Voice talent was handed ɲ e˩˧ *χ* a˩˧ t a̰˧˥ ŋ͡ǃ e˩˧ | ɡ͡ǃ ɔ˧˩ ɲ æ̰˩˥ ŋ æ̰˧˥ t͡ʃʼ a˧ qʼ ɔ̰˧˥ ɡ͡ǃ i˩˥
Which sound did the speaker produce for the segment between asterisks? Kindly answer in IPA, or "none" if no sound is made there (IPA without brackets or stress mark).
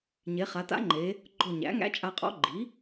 χ